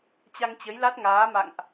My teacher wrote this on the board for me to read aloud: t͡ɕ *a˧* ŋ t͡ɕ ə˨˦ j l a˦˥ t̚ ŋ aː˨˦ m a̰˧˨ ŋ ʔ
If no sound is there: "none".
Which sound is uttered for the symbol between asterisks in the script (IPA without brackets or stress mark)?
a˧